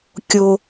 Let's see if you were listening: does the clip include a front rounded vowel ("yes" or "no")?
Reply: no